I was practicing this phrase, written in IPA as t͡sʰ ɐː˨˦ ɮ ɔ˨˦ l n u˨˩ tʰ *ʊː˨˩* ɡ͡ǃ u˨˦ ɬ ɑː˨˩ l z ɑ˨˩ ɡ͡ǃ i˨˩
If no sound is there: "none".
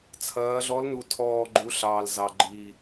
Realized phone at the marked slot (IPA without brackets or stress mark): ɔː˨˩